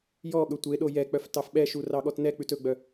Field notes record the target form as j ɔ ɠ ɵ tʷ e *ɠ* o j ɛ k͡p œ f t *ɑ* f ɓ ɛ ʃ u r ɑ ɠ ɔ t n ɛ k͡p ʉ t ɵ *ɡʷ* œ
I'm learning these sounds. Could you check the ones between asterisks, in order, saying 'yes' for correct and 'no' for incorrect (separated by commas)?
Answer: no, yes, no